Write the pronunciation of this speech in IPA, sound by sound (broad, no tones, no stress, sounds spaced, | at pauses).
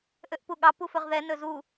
ʔ ø ʔ p u ɠ ɑ p u f ɵ ʁ ð ɛ n ɵ z u